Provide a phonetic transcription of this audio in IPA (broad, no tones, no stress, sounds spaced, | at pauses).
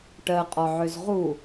ʈ ɜ qʼ ɔ ʕ ø z ʁ u